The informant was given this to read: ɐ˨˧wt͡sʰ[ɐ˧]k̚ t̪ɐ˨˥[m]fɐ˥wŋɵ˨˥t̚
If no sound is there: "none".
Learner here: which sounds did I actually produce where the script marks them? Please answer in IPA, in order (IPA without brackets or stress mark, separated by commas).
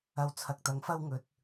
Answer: ɐ˨, ŋ